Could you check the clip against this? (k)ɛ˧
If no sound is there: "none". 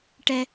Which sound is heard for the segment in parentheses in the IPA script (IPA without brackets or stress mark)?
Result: ʈ